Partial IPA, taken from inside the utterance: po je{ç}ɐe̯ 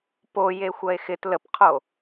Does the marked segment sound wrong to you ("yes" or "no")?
yes